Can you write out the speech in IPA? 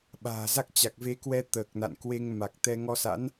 ɓ a̤ː˨˩ z a˦˥ k̚ t͡ɕ a˨˩ k̚ v e˨˦ k w ɛ˧ t̪ əː˨˩ k̚ n a̰˧˨ n k w e˧ ŋ m a˨˩ k̚ t̪ ɛ˧ ŋ ɔ˧ s a̰˧˥ n

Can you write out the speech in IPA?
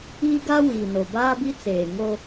iː˦ ɡ a˦ w iː˨ n o˨ b aː˦ b i˦ t͡s eː˨ ŋ o˦

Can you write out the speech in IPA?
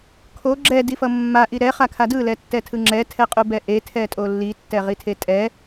kʰ o ɡ͡ǁ ɛ d i f ʌ mː a ʔ i ɾ ɛ χ a kʰ a d ɯ l ɛ tː ɛ tʰ ɯ ŋ͡ǁ ɛ tʰ ɛ qʼ u b ɛ ʔ e tʰ ɛ tʼ o lː i tː ɛ ʁ i tʰ e tʼ ɛ

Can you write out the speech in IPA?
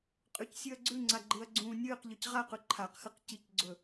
qʼ ʉ c sʲ ɨ ɐ̯ ɡ͡ǀ ʉ ŋ͡ǀ a ɡ͡ǃ ɨ ɐ̯ ɡ͡ǀ ũː nʲ ɨː q ʎ ɵ c ʁ a q ʉ ǃʰ a q x ɨ q c i c ɡ͡ǀ ɵ

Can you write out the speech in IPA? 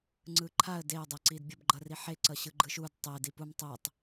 ŋ͡ǀ ɯ ǃʰ a ə̯ d e ə̯ dˤ ɛ ǀ i d bʲ ʌ b ɡ͡ǃ ʌ r i ħ e ǀ ʌ ɕ ɯ ɡ͡ǃ ɯ ʃ u d tˤ e d i p u m tˤ e tˤ

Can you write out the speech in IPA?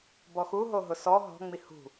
b ɔ x u ɦ o ɦ ʊ s ɔ ɦ ɔ̤ ŋ͡m i h ṳ

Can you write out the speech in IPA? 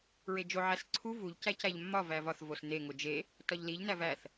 ɹ e d͡ʒ o ʕ æ s ǀʰ u v u ʎ c æ c æ ʎ mː ɒ v æ v ɒ θ v o s n e ŋ o d͡ʒ e | t ɒ ʎ l i ʎ n æ v æ θ

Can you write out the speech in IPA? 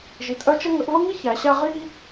ʒ i˨˦ t ʔ œ˥ t͡ʃ ə˥ ŋ ə˨˦ ʔ v ə˥ ŋ i˥ ç æ˨˦ ɕ æ˥ ʁ i˥

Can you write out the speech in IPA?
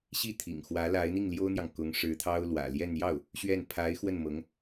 ɕ i˥˩ t̪ʰ ḭ˨˩ ŋ x w ä˧˥ l a˧˥ ɪ̯ n̪ i˥˩ ŋ l j o˥ ʊ̯ n̪ j ɑ˨ ŋ k ʊ˧˥ ŋ ʂ ɻ̩˧˥ t̪ʰ ɑ˥ ʊ̯ l w ä̰˨˩ l j ɛ˥˧ n j ɑ˥˩ ʊ̯ | ɕ ɥ ɛ˥˩ n pʰ a˧˥ ɪ̯ x w ə˥˩ n m ɤ˧˥ ŋ

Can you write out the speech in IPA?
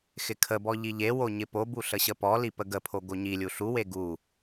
x ɪ kʰ ə b ɔ ʎ i ʎ e w o ɲ ɪ p o b u ɬ ə ɕ ə p ɔ l i p ə ɡ ə pʰ o ɡ o ɲ i lʲ u ɬ u w e ɡ u

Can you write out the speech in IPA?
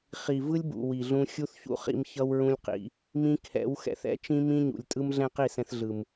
χ i˨ v ɯ˦ lʲ b ṵ˨ w i˨ ɮ ũ˧ xʲ u˦ θ ç ṵ˦ χ ḭ˧ m ç ʌ˦ w ɹ ũ˦ lʲ q ḭ˧ | m ĩ˦ kʰ ɛ̰˨˦ w x ɛ̰˧ θ ɛ̰˦ t͡ʃ ĩ˦ m ĩ˦ ɲ ṵ˨ lʲ tʼ ɯ˦ m ɮ ɛ̃˦ q i˦˨ s ɛ̃˧ θ ɮ ɯ˨ m

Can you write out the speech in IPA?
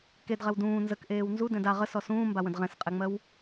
k e d ʁ ɛ w d ũː n z ə k ʔ eː w n z u d ɛ̃ d a ʁ ə s ɔ s ũː m b a w ə̃ d ʁ ɛ̃ s qʼ ɛ ŋ͡m ɜ w

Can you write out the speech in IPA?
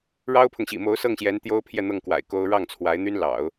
ɻ ɑ˥ ʊ̯ pʰ ʊ˨ ŋ ɕ ḭ˨˩ m o˧˥ ʊ̯ s ɤ˥˩ ŋ ɕ j ɛ˧˥ n t̪ j o˥ ʊ̯ pʰ j ɛ˥˧ n̪ ɤ˥˩ ŋ k w a̰˨˩ ɪ̯ k o˥ ʊ̯ ɻ ɑ˥˩ ŋ t͡sʰ w a˧˥ ɪ̯ n̪ y˥ n l ɑ̰˨˩˦ ʊ̯

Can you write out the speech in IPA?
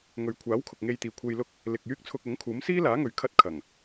ŋ ɵ˨ ɥ kʷʰ aː˨˥ w kʰ ʊ˨ k̚ ŋ e˧ j t̪ iː˨ kʷʰ e˧ j l ʊ˥ k̚ | l ɪ˨ k̚ j yː˥ k̚ t͡sʰ ʊ˧ k̚ ʊ˨˥ ŋ kʰ uː˨˥ m s iː˥ l aː˨˥ ŋ ɵ˨ ɥ kʰ ɐ˥ t̚ kʰ ɐ˨˩ ŋ

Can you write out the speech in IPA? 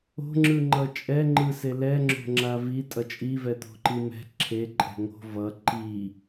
o̤ ŋ͡ǁ ɯ ŋ͡ǃ ʌ t͡ʃʼ ɛ ŋ͡ǃ ɯ s e l ɛ ŋ͡ǁ o̤ ŋ͡ǁ a v i tʼ ʌ t͡ʃʼ i v ɛ t̪ o̤ ǃ i m ɛ̤ ǁʰ e ǃʼ ɛ̤ ŋ o̤ v ʌ ǃ i

